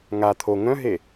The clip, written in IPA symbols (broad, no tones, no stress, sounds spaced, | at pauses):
ŋ a t̪ʰ o ŋ œ̃ ɦ e